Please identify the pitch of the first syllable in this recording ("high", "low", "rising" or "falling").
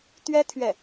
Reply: high